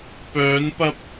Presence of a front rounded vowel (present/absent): present